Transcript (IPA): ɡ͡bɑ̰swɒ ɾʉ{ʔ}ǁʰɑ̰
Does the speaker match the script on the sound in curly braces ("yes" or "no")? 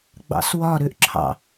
yes